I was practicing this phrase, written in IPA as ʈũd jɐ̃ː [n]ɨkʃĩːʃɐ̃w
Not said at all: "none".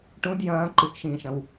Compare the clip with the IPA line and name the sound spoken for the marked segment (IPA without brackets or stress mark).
ǃ